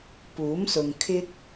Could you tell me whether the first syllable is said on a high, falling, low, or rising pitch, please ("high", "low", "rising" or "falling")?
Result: rising